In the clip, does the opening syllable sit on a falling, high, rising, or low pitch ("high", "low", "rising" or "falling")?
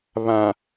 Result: low